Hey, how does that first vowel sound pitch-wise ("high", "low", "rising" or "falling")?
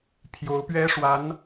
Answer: rising